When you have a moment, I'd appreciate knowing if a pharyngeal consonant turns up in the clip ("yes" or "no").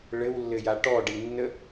no